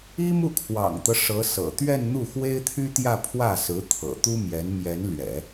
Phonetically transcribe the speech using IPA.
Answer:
i˥mu˥˩kʰwɑ̰˨˩ŋt̪ɤ˦ ʂɤ˧˥sɤ̰˨˩ t̪ɥɛ˥˧nn̪u˥˩ xwe˥ɪ̯t̪ʰy˥t̪jä˥˧ pʰwä˥˩sɹ̩˧˥t̪ʰɤ̰˨˩ t̪u˥mjɛ˧˥n mjɛ˧˥nlɥɛ̰˨˩˦

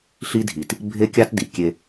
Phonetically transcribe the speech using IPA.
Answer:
ɬi˦dʱi˨t | bʱe˦kʲɑ˦tdi˨ kʲe˦

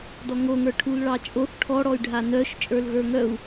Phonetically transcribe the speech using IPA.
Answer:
dɔŋoŋə˞ ʈʰulɭɑt͡ʃʼoθ ʈʰɔɽɔy̯ɖʱa nœʃ t͡ʃʼə˞lɣə˞ŋœu̯

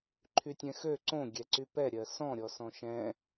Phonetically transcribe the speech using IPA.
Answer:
ǃʰytʲɛ̃xø ǀõ ɡʲɛǀypɛ ɾʲɜsɔ̃ ɾʲɔsɔ̃ʃɛ̃

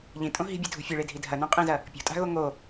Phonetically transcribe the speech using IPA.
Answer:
ʎĩtʼõ ɦi̤bʲɨdʱṳ fʲɨɭedʱi dʱɐnõqʼĩzɐ | pʲo̤tʼa̤ɣo ŋo

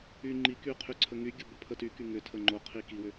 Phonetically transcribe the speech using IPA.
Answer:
y ŋ͡ǃiky qʰyǀʰəŋyɡʲo bopʰətyky ŋʏ tʰəŋ͡ǃoqʰi kiwʏ

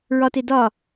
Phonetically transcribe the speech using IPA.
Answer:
ɹɒte dɒ

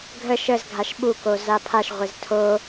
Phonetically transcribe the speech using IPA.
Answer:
ɡʱə ʃəz ɡʱaʃɓuko zapʰaʃʁʷɪz tʰo

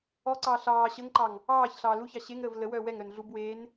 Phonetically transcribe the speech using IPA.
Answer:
ɔǀɑː ɬɑː ɕəːŋǃɑŋ | ɑːç ɬɑːluçɑ ɕeŋɾəːv lə wœːwɛŋɾœn ɮub weːn

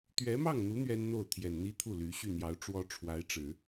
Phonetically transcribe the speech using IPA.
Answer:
t̪ɥɛ˧˥mɑ˥˩ŋn̪u˧˥ n̪ɥɛ˥nn̪o˥˩ʊ̯t̪ʰjɛ˨˩n n̪i˥t̪ʰu˥˩ly˧˥ ɕy˥˩n̪jɑ˧˥ʊ̯ ʈ͡ʂwɔ˥ʈ͡ʂʰwa˧˥ɪ̯ʈ͡ʂɻ̩˨˩˦

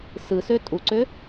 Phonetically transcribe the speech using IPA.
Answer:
sɯsø tʼuǀø

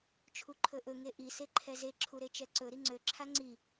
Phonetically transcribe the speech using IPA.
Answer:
t͡ʃʰuǃʰɵʔɵ ŋeʔi seǃʰɛze ǁʰuɾet͡ʃɛǀɵ ɾiŋ͡ǀø ǁʰaŋ͡ǀi

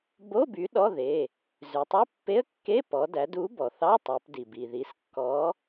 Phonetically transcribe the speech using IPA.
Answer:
bo˧˥˧ by˨˥ɗɔ˧˥˧ðe˩˧˩ | zʉ˩˧tˤy˧˥˧ pːe˧˥˧ə̯kːe˧˥˧ pɔ˩˧dæ˩˧d u˨˥bɔ˩θɑ˧˥˧tˤ œ˩˧pdi˩bi˩ ði˩˧skːɔ˨˥

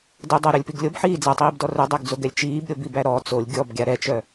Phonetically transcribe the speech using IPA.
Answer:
dɛdˤɜɾœlʲpiɡ lʲobħiː d͡zatˤiːbdɔ rœdˤaɡd͡zoɡɛlʲ t͡ʃiːbɾʲobibæ ɾɔ t͡solʲ ɡʲɔbɡʲa ɾɛt͡ʃœ

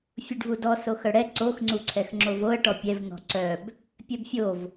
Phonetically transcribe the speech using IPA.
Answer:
fʲuɖvudɔ soxœɽɛ ǀoxŋ͡ǀuǀʰɛxŋ͡ǁov oə̯ ʈɔpʲɛvn̪ɔ̤ ǀœb | pʲœbfʲov

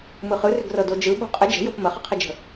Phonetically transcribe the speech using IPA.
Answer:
mɯχɯrʏɡrɤ dod͡ʒɯ ɓo̤qʼə d͡ʒə̤jop məχəqʰəd͡ʒə̤

